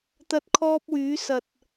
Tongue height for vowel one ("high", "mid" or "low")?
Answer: low